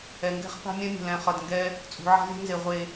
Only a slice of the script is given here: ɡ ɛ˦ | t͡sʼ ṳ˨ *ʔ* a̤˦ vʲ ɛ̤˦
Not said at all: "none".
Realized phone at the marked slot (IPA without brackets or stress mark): ʕ